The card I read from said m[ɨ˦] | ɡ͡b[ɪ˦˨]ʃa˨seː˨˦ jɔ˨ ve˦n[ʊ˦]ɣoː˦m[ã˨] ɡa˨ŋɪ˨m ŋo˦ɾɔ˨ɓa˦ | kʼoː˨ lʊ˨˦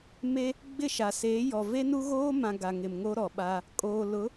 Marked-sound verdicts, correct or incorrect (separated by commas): incorrect, correct, incorrect, correct